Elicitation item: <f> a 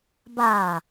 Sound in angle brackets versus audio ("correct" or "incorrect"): incorrect